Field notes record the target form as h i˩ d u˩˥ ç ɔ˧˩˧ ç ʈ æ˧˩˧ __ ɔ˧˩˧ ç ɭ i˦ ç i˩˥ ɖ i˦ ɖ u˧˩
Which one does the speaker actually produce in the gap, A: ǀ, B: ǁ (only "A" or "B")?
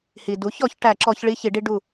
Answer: B